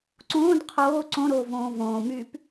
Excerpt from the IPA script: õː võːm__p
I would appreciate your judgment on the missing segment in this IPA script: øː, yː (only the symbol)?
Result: yː